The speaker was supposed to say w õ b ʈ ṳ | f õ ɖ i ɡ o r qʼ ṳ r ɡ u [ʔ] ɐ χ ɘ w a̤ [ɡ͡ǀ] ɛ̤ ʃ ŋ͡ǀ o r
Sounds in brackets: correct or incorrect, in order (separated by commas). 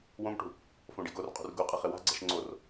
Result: incorrect, correct